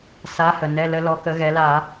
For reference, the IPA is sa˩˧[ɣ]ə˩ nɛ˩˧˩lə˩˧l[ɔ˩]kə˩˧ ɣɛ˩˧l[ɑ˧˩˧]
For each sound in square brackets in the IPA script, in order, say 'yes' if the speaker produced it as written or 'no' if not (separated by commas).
no, no, no